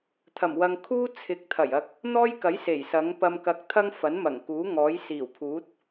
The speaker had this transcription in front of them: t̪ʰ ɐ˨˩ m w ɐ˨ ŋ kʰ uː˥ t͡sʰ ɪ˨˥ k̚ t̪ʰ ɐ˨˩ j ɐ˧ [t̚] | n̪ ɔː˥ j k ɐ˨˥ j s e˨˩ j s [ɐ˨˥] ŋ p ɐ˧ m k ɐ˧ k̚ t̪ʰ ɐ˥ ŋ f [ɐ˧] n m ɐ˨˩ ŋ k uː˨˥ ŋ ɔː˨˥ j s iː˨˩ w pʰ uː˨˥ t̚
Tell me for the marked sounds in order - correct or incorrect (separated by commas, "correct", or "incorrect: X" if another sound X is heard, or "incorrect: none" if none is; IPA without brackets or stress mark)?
incorrect: k̚, correct, incorrect: ɐ˨˥